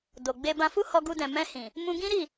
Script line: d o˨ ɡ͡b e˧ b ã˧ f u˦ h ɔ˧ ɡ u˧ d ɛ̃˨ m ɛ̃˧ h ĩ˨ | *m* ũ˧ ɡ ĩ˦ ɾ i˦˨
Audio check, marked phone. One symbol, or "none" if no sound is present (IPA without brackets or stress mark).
m